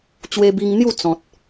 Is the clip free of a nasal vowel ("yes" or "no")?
no